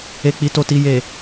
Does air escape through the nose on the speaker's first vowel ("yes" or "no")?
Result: no